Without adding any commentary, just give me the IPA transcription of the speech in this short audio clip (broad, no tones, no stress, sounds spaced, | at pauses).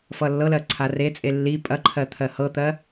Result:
f ʌ lː ɤ l ɜ ǀʰ a r e t͡sʼ e lː i pʼ ɐ ǃʰ ɜ t̪ʰ ɜ h ɤ t̪ ɜ